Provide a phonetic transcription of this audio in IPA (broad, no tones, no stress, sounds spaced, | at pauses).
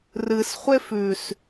r ɨ s χʷ e f ʉ s